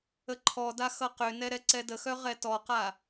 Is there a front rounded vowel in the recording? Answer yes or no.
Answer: yes